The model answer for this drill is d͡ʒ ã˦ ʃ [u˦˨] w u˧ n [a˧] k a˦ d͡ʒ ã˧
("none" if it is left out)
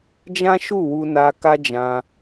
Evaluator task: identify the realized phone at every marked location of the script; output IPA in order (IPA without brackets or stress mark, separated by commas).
u˦˨, a˧